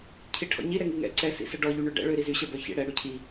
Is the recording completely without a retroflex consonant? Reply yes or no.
no